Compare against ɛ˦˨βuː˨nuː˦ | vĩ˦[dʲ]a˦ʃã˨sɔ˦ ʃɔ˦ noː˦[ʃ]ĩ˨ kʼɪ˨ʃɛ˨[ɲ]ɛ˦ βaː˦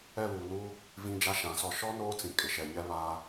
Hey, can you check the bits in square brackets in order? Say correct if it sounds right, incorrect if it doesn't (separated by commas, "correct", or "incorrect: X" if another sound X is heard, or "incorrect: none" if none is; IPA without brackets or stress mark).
incorrect: d͡ʒ, incorrect: t͡s, correct